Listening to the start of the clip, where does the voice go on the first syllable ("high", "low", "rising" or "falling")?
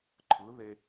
rising